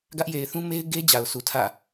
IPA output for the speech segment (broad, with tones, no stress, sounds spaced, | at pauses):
ɡ ä˦ ʔ j e˨ ɪ̯ θ ũ˦ m e˦ ɪ̯ ɡ e˦ d͡ʑ a˨ ʊ̯ sʰ u˨ tʰ ä̰˦˨